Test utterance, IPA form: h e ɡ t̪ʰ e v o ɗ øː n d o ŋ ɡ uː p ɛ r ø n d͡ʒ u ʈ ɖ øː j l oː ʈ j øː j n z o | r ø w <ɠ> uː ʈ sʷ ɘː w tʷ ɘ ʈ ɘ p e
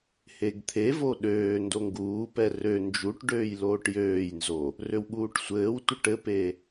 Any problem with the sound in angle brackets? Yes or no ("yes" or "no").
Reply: no